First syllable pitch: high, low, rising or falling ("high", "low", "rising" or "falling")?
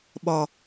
low